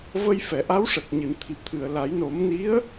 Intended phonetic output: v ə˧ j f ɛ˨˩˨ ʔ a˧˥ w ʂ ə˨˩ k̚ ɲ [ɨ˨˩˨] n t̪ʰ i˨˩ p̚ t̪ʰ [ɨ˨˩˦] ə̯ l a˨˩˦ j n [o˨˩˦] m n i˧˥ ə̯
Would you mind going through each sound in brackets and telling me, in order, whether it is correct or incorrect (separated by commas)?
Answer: correct, incorrect, correct